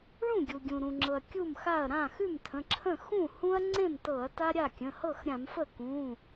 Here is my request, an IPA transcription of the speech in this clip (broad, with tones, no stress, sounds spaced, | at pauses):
ɭ ũ˥˩ ɡʲ u˩ ɡʲ ũ˩ ɾ ũ˩ ŋ͡ǁ ɤ˩ ɐ̯ kʲ u˥˩ m x a˥˩ ɐ̯ ɾ ã˥˩ x ʉ˥˩ m tʰ ə̃˩˧˩ ǁʰ ə̃˥˩ x ũ˥˩ h ũ˦ ɐ̯ ŋ͡ǀ ẽ˥˩ m t ɤ˧˩˧ ɐ̯ t a˦ ɾʲ a˥˩ kʲ ə̃˩˧˩ h ɤ˥˩ x ɾʲ ã˧˩˧ m f ə˥˩ k ũ˩˧˩